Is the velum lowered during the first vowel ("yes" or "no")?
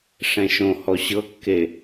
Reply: yes